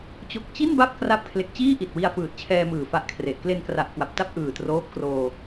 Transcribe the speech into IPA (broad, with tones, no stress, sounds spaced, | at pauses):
t͡ɕ o˨˩ k̚ t͡ɕ i˥˩ n b a˥˩ p̚ k r a˦˥ p̚ kʰ l e˨˩ k̚ t͡ɕ iː˥˩ ʔ i˨˩ t̚ w i˧ a̯ f ɯː˨˩ t̚ t͡ɕʰ ɛː˧ m ɯː˨˩ f a˦˥ ʔ kʰ r e˨˩ ʔ k l e˧ n k r a˨˩ ʔ k w a˨˩ p̚ t a˥˩ p̚ ʔ ɯː˨˩ t r oː˦˥ p̚ k r oː˧